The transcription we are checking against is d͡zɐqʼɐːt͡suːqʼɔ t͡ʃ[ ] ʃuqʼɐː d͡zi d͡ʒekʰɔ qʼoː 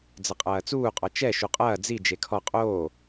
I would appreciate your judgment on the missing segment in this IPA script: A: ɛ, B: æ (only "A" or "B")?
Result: A